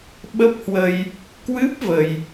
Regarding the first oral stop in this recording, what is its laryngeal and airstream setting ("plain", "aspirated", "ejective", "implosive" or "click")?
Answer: implosive